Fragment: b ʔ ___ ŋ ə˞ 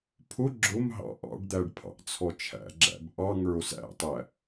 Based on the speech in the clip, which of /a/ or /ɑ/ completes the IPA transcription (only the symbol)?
ɑ